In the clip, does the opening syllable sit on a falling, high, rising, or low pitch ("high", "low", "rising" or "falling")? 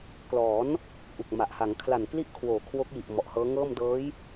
rising